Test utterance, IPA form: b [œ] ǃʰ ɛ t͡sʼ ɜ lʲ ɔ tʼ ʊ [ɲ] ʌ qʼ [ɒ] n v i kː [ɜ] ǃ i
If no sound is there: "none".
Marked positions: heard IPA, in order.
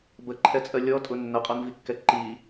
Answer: ə, nː, ɒ, ɛ

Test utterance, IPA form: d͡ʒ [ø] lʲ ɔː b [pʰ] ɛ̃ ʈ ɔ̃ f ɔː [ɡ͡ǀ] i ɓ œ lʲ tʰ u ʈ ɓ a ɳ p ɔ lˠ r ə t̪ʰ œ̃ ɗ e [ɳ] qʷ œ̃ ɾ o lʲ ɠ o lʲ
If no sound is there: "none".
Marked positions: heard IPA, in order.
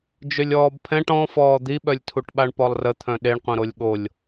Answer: ø, pʰ, d̪, ɳ

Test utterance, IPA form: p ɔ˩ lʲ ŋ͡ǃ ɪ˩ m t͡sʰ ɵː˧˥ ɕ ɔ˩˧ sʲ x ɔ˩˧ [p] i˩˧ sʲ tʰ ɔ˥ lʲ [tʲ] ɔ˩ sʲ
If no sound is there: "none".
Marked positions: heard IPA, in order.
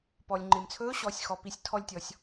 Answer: p, tʲ

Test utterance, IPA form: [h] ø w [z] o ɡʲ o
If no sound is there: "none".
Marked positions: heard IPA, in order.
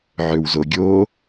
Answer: ʕ, z

